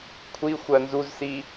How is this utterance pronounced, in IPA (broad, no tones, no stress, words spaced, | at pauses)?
kʷʰi xʷɜnzuzsi